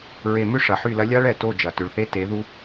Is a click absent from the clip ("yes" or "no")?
yes